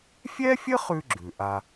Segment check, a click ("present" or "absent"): present